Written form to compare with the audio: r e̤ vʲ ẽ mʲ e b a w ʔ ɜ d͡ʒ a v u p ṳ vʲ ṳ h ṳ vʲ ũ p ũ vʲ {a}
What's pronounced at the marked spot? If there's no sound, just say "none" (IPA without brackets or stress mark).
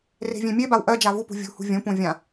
ã